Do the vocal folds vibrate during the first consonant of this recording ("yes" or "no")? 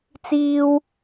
no